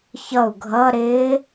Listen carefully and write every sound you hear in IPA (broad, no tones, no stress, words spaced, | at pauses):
çʌu̯ ɡʱʌ ɾɪː